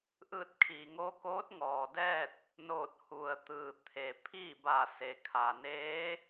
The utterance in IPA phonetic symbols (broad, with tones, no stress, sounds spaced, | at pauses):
ʔ ɯː˧˩ t̚ kʰ iː˩ ŋ oː˧ k oː˧˥ t̚ ŋ ɔː˩ d ɛː˥˨ t̚ | n oː˧˩ t̚ h u˩ ə̯ t̪ ɯː˩ t̪ʰ e˩ pʰ iː˥˨ b a˧˩ s e˩˧ kʰ a˩ n eː˧˥